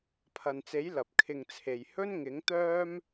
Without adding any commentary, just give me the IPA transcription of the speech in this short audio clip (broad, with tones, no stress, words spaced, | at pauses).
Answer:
pʰɐ˨nt͡se˨˥j lɐ˨p̚kʰɪ˧ŋt͡sʰe˨j hɵ˥nŋɪ˨˥ŋt̪œː˥m